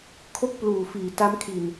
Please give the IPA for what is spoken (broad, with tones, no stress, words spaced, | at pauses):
kʰo˥˩k̚pluː˨˩fiː˨˩ ta˦˥mkʰi˨˩n